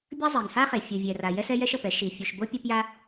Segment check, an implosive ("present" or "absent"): absent